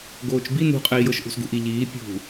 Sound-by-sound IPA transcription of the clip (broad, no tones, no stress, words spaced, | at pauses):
ɡoːt͡ʃbi nṳqʼɛi̯ jɤʃʔṳsɡṳʔi ʎiː pʲṳ